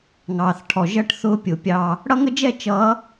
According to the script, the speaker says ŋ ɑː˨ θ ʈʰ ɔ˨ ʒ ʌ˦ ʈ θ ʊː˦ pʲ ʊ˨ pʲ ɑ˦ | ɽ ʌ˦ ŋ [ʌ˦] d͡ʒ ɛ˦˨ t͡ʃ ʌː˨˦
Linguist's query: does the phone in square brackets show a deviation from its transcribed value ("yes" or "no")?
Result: yes